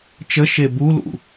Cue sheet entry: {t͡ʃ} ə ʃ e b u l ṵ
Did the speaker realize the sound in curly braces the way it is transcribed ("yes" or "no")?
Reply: yes